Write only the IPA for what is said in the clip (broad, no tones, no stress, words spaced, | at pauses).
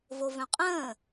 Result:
vovœ̃qʼə̃ː